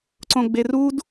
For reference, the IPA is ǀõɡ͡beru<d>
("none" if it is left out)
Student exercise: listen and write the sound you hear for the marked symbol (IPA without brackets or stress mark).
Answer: d